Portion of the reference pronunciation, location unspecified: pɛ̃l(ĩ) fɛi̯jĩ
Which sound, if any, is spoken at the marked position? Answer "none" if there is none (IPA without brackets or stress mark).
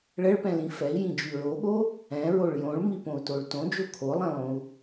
ĩ